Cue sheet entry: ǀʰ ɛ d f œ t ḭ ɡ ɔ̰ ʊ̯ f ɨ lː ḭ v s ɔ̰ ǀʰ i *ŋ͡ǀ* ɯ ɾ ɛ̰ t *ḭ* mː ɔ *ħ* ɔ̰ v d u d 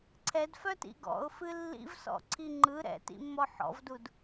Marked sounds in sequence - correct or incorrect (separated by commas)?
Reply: incorrect, correct, correct